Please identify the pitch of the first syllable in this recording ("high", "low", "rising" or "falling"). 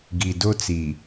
low